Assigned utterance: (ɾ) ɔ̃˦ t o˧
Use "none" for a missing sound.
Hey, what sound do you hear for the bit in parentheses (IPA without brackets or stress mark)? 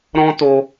ɾ